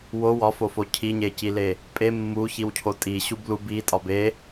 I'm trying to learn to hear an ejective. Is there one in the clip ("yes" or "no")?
yes